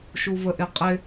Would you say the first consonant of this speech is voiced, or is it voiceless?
voiceless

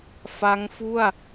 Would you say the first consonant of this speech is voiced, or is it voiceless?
voiceless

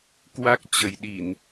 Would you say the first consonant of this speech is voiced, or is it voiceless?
voiceless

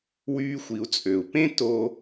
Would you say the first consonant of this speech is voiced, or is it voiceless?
voiced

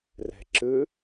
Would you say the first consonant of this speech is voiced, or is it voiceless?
voiced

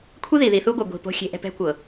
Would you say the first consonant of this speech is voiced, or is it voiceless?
voiceless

